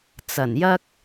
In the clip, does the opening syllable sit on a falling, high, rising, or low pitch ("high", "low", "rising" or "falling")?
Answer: low